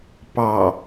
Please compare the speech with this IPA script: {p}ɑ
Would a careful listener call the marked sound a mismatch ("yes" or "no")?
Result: no